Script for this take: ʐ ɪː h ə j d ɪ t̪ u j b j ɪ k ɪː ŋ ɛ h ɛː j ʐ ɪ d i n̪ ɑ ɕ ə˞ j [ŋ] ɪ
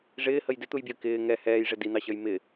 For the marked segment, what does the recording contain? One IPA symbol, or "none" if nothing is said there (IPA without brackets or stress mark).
m